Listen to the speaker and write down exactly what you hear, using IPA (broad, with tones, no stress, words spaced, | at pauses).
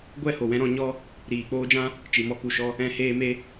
ɡʷɛ˦˨ho˨wɛ̃˧ ɾɔ̃˧ɲɔ˦ | ɾiː˨k͡poː˦d͡ʒã˦ | t͡ʃi˨mɔ˧ku˨ʃɔ˧ | ɛ̃˧ heː˧me˧